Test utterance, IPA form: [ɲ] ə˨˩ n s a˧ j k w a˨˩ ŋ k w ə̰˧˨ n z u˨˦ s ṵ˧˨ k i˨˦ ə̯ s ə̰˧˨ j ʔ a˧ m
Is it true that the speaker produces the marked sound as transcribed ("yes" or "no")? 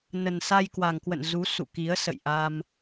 no